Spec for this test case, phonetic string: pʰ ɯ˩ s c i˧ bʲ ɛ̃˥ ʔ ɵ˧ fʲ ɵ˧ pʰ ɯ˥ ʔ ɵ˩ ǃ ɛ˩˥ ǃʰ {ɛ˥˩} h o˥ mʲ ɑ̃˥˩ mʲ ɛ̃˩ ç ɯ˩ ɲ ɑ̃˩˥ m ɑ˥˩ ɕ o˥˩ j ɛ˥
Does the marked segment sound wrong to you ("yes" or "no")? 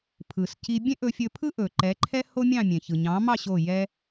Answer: yes